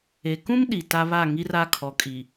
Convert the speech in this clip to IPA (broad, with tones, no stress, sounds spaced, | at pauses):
e˨ k ũ˦ m ɗ i˨ t a˦ β a˦˨ ŋ i˦ r a˦ kʰ ɔ˨ kʼ i˨